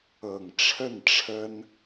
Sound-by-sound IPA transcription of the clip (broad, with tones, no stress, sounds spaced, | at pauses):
ɤ˨˩ ŋ ʈ͡ʂʰ ə˥˨ n ʈ͡ʂʰ ə˦ n